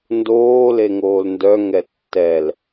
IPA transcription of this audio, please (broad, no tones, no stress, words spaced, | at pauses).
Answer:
ndoː leŋoːlndœ ŋɛtːɛl